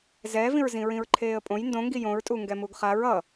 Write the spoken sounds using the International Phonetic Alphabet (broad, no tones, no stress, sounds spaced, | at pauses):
z ɛː v ĩ ɹ z ĩ ɹ ĩ ɹ ǃʰ eː ə̯ pʼ õ j n d õ ŋ ɡ i j õ ɹ tʼ u ŋ ɡ ɛ m u ɡ χ a ɹ ʌ